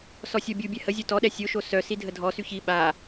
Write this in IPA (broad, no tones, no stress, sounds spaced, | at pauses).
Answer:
s ɔ sʲ ɔ bʲ u bʲ ɛ h ə zʲ o t ɔ ɗ ɛ sʲ o ʃ o s œ s i dʱ ə dʱ ɔ s y ç i ɓ a